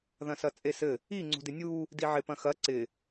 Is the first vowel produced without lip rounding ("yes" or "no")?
yes